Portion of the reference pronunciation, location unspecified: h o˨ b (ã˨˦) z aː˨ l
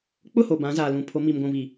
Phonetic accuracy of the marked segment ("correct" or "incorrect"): correct